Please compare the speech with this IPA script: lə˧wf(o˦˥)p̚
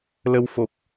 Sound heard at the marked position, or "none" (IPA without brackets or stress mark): o˨˩